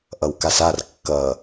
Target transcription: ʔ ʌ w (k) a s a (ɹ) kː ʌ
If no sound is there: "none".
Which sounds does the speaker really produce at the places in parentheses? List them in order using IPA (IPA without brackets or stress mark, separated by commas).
k, r